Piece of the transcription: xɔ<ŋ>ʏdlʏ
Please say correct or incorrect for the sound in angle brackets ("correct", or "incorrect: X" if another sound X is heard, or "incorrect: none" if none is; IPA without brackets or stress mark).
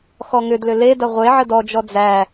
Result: correct